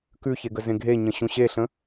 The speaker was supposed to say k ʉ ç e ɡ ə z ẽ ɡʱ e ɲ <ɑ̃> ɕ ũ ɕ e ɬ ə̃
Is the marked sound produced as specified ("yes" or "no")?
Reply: no